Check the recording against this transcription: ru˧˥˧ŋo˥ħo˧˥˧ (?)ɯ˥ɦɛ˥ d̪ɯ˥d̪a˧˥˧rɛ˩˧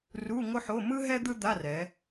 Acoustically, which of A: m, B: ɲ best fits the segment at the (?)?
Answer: A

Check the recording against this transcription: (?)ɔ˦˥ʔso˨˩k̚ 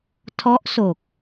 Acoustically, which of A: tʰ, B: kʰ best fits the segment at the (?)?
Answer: A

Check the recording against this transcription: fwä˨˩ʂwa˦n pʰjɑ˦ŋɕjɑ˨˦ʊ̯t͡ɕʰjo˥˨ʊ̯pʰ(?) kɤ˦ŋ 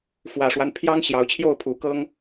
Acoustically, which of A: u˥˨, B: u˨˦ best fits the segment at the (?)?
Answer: B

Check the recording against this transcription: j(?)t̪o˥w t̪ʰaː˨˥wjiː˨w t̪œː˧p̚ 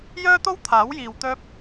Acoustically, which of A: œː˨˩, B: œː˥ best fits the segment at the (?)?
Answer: B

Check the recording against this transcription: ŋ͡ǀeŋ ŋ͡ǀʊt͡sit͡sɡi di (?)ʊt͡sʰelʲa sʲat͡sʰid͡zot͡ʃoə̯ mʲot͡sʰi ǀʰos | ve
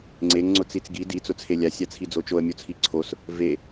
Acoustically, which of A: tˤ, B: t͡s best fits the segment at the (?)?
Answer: B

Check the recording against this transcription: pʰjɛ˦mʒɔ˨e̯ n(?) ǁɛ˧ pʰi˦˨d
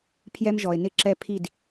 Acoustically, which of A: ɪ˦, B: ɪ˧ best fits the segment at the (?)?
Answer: B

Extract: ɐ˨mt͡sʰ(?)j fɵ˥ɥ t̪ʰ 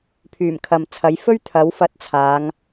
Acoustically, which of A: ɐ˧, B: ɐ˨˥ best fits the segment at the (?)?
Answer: B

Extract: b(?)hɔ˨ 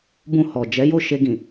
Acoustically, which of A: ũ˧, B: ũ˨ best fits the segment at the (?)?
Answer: A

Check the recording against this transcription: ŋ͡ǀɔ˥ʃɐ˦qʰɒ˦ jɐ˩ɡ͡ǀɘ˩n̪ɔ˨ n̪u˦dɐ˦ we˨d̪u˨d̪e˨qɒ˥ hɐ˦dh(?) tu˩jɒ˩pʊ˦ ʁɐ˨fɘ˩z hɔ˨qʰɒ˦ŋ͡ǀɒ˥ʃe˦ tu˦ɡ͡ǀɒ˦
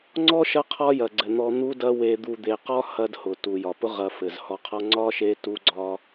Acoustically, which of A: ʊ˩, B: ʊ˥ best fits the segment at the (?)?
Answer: A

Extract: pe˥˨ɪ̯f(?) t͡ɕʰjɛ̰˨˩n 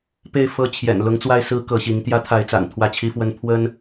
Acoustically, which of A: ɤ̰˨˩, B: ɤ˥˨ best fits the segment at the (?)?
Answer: B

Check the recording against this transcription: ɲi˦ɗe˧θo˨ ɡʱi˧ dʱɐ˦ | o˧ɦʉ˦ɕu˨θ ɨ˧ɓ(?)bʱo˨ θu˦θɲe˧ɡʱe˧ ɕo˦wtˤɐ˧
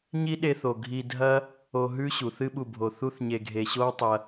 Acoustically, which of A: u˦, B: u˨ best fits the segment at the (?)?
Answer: B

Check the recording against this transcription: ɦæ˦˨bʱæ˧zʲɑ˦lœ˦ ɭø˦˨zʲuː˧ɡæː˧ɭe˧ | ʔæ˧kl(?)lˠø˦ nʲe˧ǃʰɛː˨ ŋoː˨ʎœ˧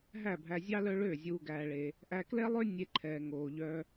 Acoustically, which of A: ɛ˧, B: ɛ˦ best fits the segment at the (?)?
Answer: B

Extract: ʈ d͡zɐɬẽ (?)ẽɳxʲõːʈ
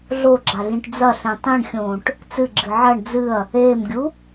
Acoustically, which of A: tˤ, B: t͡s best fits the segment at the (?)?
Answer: A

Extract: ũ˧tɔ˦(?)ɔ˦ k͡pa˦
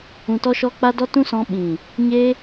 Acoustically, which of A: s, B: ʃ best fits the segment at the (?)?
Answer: B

